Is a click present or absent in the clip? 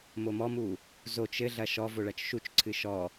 present